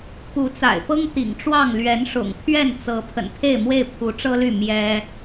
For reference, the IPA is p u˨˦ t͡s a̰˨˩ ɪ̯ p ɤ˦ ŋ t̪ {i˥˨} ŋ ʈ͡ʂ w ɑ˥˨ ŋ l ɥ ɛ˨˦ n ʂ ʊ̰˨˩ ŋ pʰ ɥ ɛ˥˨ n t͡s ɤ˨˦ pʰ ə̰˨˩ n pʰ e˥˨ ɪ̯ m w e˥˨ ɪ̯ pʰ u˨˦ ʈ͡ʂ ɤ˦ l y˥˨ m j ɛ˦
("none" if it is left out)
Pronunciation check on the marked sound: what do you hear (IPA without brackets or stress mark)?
ḭ˨˩